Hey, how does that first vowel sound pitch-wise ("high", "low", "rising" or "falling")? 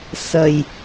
low